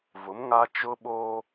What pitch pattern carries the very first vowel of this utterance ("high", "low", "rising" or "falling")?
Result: rising